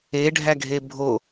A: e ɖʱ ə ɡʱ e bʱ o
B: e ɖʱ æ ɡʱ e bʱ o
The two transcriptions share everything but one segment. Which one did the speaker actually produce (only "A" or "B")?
B